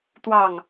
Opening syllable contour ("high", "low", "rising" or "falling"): falling